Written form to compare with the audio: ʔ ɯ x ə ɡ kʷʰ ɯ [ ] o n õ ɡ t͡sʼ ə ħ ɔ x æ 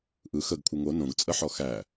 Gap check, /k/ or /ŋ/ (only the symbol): ŋ